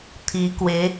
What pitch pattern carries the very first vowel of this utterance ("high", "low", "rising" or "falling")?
rising